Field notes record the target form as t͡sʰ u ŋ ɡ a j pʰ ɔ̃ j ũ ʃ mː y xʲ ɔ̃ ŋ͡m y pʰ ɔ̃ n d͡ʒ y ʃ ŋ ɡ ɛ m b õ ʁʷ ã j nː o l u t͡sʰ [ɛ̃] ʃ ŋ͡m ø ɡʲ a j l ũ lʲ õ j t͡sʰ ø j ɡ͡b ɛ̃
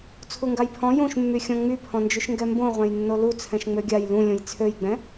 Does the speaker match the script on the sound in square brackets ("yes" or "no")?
yes